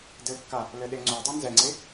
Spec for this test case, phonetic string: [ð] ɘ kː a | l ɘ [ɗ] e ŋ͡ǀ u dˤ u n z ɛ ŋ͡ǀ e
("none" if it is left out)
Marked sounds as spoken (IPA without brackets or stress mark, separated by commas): d, ɗ